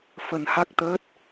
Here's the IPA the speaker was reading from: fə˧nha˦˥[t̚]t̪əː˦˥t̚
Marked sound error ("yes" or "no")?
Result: yes